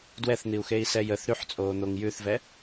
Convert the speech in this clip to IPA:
d w ɛ θ n̪ i u̯ x e i̯ s ɛ j ə θ ɾ y ħ t͡sʼ oː n̪ o ŋ j ʉ θ v ɛ

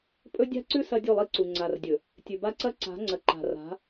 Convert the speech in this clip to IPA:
pʼ ɵ˦ dʲ a̤˦ ǀ ʉ˦ s ɐ˦ dʲ u˦˨ lˠ i˦ ǀ u˨ ŋ͡ǀ a˨ r dʲ ɵ˨ | tʲ ʉ˨ b a˦ ǀ ɐ˦ ǀ a̤˨˦ ŋ͡ǀ ɐ˨ ǃ a̤˨ r a̤˨˦

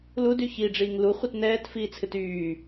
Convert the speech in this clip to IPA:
l u d y ç i ɖ͡ʐ iː ŋ l u χʷ ɨ t n ɛː t f iː t͡sʰ ɨ t yː

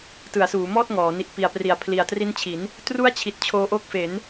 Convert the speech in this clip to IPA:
t ɯ˩˦ a̯ s uː˩˦ m ɔː˥˩ t̚ ŋ ɔː˩˦ n i˨˩ ʔ p i˨˩ a̯ p r i˩˦ a̯ pʰ l i˨˩ a̯ t r i˦˥ n t͡ɕʰ i˩˦ n | t r u˦˥ a̯ t͡ɕʰ i˨˩ t̚ t͡ɕʰ oː˧ ʔ o˦˥ k̚ f e˩˦ n

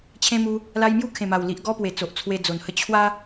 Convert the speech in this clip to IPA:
t͡ɕʰ ẽ˧ m u˧ | l a˧ j m j u˥˧ kʰ ẽ˨˩ m a˨˩ w l i˨ ʔ ɡ ɔ˦ p w e˨˩ t͡s o˨ ʔ t͡sʰ w e˧ d͡z o˨˩ n h ə˦ t͡ɕʰ w a˦

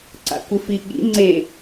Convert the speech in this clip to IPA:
ǀ a̰ kʷ ɪ f i ɠ ḭ ŋ͡ǀ e

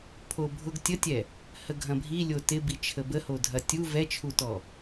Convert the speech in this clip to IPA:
pʰ o bʱ ʊ ɡ tʲ ə tʲ ɛ | h ə ɡʱ ɐ̃ bʱ i lʲ o t ɪ b i t͡ʃʰ ə b ə h o dʱ ɐ tʲ u v ɛ t͡ʃʰ u t ɔ

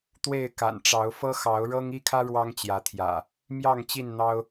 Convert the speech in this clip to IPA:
t̪ w e˥˨ ɪ̯ k a̰˨˩ n ʈ͡ʂ ɑ˨˦ ʊ̯ f ɤ˦ x ɑ˨˦ ʊ̯ ɻ ɤ˦ ŋ i˦ kʰ ä˦ ɻ w ɑ˦ ŋ t͡ɕ j ä˨˦ t̪ʰ j ä̰˨˩ | m j ɑ˥˨ ŋ t͡ɕ i˥˨ n n̪ ɑ˦ ʊ̯

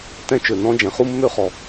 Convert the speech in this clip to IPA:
t ɛ̃˥ t͡ʃ ø˩ n ɔ̃˥ d͡ʒ ɛ̃˩ χ u˥ mː ø˥ χ ɔ˩

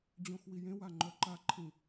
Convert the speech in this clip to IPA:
d͡ʑ õ x w i j ẽ w a ŋ͡ǃ œ ǃ a ǃʰ ĩ

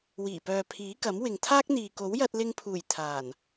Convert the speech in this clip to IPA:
w iː˨˩ p œː˨ pʰ iː˨˥ k ɐ˨˥ m w ɪ˨ ŋ t̪ʰ aː˥ k̚ n̪ iː˨ k o˨˥ w j ɐ˧ t̚ l ɪ˧ ŋ pʰ uː˨˩ j t̪ʰ aː˨˩ n

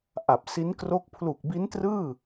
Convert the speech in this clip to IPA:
ʔ a˨˩ p̚ s i˦˥ n k r o˦˥ k̚ pʰ l u˨˩ k̚ b i˦˥ n t r ɯː˥˩

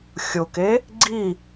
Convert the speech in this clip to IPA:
xʲ ʊ k e | ɡ͡ǀ i

